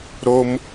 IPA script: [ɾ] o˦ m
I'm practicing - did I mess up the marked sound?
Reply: no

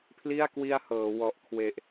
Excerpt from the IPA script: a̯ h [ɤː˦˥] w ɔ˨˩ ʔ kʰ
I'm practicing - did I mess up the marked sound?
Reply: yes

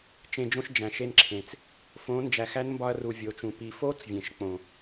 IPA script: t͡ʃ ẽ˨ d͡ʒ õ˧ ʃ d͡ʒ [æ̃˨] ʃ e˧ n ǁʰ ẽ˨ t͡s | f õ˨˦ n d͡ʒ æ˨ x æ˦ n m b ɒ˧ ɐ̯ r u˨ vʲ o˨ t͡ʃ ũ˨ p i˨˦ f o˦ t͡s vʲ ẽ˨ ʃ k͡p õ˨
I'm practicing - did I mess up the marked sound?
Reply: no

